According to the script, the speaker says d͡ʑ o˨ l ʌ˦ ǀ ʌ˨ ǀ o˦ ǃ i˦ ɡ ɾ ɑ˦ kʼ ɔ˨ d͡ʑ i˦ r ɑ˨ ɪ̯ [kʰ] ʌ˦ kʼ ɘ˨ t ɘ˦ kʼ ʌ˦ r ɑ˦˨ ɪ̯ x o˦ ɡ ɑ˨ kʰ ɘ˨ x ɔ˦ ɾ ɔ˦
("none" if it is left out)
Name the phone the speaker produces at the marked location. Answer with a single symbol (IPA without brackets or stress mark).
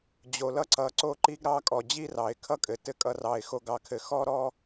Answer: kʰ